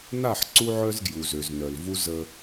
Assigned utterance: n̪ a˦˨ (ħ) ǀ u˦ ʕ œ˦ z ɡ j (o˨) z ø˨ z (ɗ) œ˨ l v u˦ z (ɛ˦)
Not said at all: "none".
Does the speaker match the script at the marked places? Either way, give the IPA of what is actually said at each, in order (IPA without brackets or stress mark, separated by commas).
ħ, u˨, n, ə˦